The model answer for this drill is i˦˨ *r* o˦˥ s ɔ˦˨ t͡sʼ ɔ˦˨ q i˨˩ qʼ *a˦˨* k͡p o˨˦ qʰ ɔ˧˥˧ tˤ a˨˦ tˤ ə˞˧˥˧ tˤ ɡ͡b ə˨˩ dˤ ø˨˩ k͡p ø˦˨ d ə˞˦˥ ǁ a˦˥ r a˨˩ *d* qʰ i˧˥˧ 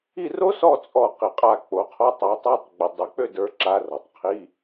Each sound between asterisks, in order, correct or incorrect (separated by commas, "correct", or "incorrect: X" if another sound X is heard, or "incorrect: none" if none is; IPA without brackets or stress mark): correct, correct, incorrect: tˤ